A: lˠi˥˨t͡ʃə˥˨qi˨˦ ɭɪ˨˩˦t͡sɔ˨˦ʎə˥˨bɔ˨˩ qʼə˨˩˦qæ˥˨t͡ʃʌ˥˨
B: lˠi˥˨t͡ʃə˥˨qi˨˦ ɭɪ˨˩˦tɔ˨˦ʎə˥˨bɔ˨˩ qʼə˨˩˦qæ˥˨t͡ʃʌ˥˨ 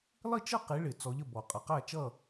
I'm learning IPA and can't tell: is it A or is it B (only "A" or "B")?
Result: A